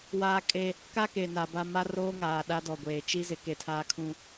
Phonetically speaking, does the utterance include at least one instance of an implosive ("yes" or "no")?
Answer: yes